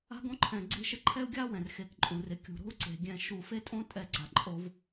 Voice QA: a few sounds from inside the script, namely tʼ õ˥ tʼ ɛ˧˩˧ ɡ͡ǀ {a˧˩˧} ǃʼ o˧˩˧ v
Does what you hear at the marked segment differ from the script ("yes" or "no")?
yes